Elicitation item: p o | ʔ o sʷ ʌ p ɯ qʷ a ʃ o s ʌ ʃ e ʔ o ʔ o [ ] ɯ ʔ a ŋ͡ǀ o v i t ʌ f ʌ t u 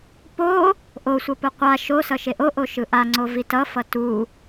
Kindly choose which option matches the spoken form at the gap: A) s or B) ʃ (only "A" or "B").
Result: B